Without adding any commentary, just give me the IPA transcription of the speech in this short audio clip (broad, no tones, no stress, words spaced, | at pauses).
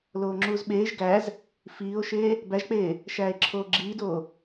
loːŋ͡ǁuːzɓeːʒ ɡæz | fiːo̯ʃeː | bæʒk͡peː | ʃæːe̯ǁʰoːɡ͡ǁiːdoː